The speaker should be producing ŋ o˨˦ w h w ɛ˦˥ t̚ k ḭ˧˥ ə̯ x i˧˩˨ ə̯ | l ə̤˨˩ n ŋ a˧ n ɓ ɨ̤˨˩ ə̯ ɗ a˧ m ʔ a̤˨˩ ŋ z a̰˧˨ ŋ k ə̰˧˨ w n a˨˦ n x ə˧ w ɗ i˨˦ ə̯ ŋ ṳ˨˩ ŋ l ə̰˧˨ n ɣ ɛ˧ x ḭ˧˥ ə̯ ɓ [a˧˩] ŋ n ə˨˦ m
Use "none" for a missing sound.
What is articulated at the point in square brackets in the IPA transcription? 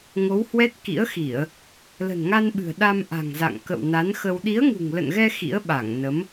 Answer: a˧˩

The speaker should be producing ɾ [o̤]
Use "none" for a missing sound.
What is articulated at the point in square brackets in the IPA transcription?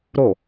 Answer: o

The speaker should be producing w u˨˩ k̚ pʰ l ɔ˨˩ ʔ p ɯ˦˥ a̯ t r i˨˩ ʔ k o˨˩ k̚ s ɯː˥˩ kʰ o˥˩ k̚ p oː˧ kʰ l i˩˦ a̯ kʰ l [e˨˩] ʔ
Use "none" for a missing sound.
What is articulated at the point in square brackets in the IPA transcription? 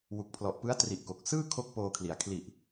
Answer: i˨˩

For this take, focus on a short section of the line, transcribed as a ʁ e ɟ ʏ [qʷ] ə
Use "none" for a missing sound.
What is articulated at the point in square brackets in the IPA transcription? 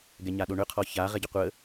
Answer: qʷ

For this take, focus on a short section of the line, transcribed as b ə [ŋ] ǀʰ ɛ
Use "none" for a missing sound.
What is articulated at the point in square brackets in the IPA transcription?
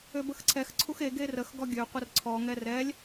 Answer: x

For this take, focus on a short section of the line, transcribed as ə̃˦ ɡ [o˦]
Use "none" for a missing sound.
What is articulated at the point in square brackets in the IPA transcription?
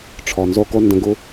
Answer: u˦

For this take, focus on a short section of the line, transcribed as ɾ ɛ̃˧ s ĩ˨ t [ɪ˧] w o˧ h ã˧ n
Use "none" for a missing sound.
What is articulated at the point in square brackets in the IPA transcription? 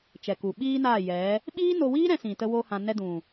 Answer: ə˧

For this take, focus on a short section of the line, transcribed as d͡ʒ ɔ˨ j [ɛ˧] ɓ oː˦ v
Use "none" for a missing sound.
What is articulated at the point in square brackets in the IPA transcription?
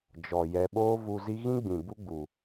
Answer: ɛ˧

